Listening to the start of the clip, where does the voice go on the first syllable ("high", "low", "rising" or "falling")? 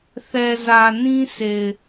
low